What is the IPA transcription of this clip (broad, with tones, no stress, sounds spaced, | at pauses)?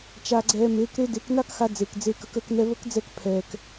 t͡ʃ a˧ ɡ͡ǀ ɛː˧ m eː˨˦ k ɾ e˦ d e˨˦ k n a˦ k x a˧ d͡z eː˨ k d͡z e˧ k ə˧ k əː˧ k n ɛ˧ β ə˦ k d͡z ɛ˧ k pʰ ɛː˨ k